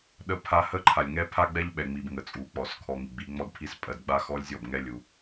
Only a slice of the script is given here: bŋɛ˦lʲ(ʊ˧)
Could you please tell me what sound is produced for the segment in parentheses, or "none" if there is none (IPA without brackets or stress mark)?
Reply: u˧